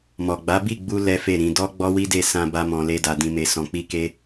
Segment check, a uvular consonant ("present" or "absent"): absent